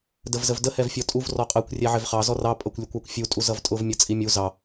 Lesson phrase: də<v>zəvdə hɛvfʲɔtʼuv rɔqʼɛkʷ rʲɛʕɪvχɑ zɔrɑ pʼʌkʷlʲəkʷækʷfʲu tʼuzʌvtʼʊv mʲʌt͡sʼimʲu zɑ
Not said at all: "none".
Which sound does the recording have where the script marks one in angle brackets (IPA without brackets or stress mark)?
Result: v